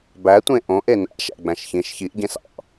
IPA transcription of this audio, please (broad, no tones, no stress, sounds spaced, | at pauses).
b æ tʷ ẽ ʔ õ ʔ e n æ̰ ʃ æ̰ ɡ͡b æ̃ ʃ ç ĩ ʃ ç i ʔ ɟ ẽ s ɑ̰